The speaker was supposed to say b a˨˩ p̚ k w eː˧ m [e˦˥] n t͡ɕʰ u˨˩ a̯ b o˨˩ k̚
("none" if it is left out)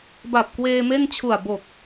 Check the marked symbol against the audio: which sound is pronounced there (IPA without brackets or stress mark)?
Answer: e˥˩